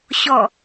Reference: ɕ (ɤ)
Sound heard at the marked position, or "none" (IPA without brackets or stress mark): ɔ